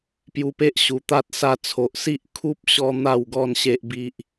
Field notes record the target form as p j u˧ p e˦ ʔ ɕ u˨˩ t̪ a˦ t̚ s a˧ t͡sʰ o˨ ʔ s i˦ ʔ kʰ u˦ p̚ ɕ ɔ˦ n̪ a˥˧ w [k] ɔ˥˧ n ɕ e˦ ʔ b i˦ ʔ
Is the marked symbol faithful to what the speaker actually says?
no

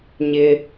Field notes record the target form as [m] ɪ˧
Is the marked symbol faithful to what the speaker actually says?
no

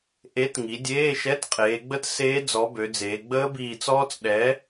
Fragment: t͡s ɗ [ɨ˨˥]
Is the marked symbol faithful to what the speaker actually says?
no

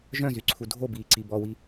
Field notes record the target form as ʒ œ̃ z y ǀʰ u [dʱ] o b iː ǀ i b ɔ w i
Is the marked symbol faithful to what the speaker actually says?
yes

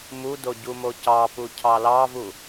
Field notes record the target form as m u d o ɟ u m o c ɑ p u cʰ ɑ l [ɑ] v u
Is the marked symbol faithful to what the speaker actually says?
yes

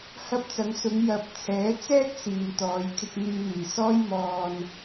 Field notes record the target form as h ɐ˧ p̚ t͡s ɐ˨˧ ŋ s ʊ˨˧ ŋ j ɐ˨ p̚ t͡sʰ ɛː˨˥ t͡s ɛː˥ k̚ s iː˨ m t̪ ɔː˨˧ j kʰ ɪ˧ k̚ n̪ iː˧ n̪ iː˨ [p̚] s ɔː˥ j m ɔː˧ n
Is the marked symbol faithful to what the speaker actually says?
no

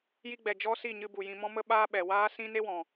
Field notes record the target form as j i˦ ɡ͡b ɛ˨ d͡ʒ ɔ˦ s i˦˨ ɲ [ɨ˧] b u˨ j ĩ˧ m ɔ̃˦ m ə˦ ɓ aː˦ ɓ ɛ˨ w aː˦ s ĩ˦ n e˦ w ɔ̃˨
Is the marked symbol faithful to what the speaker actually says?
yes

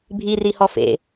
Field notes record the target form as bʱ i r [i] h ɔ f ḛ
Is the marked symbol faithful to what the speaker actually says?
yes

